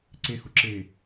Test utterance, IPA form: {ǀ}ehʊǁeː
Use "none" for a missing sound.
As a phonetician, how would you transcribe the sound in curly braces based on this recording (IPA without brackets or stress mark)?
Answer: ǀ